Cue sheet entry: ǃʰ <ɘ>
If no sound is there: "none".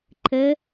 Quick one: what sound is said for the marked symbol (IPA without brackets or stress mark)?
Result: ɘ